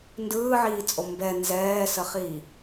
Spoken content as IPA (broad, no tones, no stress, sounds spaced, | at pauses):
n d ɯː ʕ iː t͡sʼ o m b ɛ n z ɛː s ə χ i